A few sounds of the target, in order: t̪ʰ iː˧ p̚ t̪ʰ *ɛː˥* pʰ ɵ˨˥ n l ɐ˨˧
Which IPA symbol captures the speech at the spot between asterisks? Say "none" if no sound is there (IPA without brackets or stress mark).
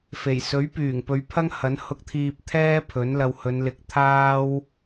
ɛː˥